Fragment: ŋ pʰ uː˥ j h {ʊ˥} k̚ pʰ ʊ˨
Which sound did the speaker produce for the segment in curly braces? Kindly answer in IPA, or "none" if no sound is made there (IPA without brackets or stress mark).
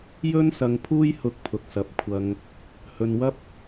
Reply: ʊ˧